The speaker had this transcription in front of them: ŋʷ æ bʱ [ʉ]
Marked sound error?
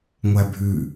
no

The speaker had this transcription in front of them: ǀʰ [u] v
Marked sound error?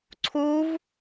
no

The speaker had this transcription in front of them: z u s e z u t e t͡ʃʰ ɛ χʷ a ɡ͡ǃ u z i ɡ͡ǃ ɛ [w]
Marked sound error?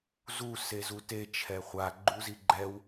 no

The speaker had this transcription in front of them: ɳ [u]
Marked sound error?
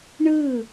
yes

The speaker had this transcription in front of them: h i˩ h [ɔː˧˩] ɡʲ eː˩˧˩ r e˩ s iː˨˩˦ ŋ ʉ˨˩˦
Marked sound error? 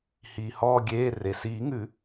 no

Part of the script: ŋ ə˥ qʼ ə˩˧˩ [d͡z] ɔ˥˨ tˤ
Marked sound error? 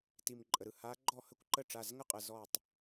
yes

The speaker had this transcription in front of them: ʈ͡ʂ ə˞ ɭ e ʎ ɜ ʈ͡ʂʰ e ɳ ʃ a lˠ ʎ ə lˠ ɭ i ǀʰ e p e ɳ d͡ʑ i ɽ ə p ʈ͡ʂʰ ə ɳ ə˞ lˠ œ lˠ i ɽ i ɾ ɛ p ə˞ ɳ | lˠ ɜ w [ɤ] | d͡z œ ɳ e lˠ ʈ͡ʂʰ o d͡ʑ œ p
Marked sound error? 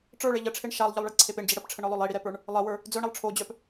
yes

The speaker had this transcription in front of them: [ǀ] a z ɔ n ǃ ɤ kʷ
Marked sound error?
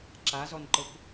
yes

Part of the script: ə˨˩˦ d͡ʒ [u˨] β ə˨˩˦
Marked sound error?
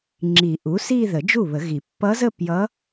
yes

